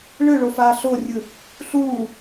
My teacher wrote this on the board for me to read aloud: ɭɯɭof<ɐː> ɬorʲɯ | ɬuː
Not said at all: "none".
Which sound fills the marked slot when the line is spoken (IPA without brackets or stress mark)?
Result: aː